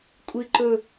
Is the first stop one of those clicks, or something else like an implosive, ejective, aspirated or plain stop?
ejective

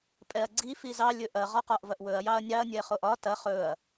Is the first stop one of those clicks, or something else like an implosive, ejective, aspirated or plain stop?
ejective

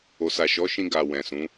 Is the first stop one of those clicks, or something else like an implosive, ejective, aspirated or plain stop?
plain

